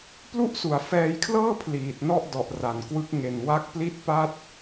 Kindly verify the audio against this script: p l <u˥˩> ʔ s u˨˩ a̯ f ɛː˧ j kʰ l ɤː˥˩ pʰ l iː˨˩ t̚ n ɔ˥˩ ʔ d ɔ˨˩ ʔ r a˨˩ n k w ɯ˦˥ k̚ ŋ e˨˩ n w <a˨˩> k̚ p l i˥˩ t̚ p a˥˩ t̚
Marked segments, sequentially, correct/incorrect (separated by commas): correct, incorrect